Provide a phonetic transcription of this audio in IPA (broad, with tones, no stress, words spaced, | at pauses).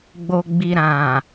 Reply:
ɡ͡bo˨ɡ͡bi˨ɾã˨